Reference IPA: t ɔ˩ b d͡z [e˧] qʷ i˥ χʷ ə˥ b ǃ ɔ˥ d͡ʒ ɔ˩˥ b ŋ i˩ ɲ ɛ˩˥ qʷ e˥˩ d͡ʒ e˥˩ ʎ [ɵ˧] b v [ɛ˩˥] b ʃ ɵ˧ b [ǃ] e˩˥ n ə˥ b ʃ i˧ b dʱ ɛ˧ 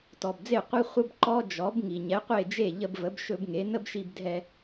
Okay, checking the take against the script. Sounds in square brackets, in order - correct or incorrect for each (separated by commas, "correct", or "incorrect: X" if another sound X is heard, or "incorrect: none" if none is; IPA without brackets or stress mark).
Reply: incorrect: e˥˩, incorrect: ə˧, incorrect: ə˩˥, incorrect: ŋ